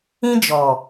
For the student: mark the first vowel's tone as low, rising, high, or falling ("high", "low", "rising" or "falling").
high